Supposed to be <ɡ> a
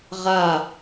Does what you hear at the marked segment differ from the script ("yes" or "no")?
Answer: yes